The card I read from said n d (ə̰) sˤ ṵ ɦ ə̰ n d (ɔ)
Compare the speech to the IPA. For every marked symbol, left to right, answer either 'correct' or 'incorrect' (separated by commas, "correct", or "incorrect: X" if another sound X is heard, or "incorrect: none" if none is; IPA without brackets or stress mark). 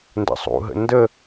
correct, incorrect: ə